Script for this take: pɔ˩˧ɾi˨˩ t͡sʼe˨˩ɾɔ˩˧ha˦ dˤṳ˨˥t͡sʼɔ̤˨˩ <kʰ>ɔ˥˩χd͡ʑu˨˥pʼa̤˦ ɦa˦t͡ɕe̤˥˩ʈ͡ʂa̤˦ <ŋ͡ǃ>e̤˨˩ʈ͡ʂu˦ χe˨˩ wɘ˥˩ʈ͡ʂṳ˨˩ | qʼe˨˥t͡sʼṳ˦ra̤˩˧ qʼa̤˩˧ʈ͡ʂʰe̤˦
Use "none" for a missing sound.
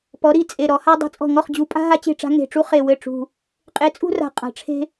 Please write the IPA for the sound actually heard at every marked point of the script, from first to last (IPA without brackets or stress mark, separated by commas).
ŋ, ŋ